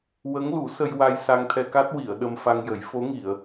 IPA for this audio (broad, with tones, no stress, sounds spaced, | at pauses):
w ə˧˥ ŋ l u˨˩˦ s ə˧ j w a˧ j s a˧ ŋ t̪ʰ ɛ˧ k a˦˥ t̚ w i˨˩˨ ə̯ ɗ ə˧ m f a˧ ŋ j ə˨˩˦ j f o˧˥ ŋ i˨˩˨ ə̯